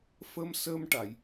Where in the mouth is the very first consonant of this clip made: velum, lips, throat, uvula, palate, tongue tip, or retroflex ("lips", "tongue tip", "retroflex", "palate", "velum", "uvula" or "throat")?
lips